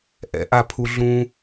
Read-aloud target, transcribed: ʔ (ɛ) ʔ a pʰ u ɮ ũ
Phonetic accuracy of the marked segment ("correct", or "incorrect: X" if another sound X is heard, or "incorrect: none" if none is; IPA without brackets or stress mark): incorrect: ɛ̰